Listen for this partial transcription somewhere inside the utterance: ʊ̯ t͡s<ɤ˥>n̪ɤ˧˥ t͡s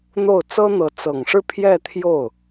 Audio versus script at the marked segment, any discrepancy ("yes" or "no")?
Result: no